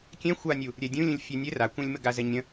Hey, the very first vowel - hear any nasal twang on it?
yes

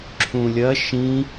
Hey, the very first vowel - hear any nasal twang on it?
yes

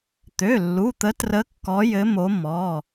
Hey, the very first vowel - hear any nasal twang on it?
no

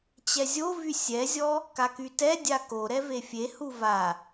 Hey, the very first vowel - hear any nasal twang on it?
no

